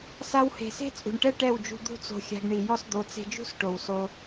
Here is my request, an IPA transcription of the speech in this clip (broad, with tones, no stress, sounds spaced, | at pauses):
s a˧ w h e̤˨ s e̤˦ t͡sʼ ṳ˨ ɳ ʈ ɛ˦ ʈ ɛ˦˨ w d͡ʒ ṳ˧ d̪ ṳ˦ t͡s o̤˧ xʲ a̤˧ ɡ ɳ i˨ j ɔ˧ s d̪ o˨˦ t͡s e̤˧ d͡ʒ ṳ˦ s ʈ o˨ w s o˧